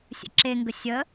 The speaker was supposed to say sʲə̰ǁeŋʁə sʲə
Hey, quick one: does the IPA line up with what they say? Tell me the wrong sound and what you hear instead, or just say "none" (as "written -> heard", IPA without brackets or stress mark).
ʁ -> ɡ